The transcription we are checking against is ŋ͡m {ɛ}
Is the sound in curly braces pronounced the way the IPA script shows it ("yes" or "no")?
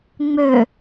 no